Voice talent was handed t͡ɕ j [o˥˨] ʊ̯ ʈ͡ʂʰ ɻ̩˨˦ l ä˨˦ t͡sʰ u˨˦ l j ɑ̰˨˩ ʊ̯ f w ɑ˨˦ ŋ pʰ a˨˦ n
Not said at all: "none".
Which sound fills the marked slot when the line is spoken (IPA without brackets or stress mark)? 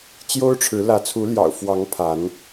o˦